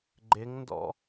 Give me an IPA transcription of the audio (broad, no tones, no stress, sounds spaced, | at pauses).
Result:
ɡ͡ǃ ɪ ŋ n d ɔ̰